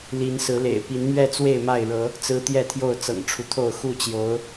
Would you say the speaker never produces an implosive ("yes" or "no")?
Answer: yes